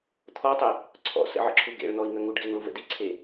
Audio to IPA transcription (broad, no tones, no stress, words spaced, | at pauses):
t̪ʰɔtˤə | ǀʰɔ̰ sə̰ʕə̰ǁʰu ɡḛɭn̪ɔi̯ŋə ŋuɖɡeŋɭuvə̰ diǀʰe